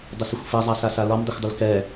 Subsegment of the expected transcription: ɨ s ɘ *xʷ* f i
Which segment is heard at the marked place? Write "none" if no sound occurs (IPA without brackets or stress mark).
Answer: xʷ